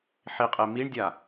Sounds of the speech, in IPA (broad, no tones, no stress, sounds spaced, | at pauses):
ħ i qʼ e m i ɳ dʲ a